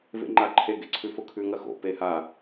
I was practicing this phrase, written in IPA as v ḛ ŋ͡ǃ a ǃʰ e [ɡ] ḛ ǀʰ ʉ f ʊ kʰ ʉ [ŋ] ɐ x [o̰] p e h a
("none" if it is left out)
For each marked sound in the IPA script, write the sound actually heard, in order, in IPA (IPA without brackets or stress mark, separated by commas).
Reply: ɡ, ŋ, o̰